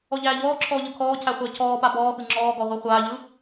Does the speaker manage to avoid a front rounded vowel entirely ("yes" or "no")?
yes